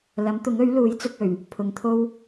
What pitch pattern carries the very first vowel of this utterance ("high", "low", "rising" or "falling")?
rising